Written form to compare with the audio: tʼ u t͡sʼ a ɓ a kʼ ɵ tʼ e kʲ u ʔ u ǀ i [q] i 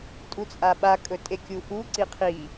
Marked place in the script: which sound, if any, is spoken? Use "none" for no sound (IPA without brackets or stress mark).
qʰ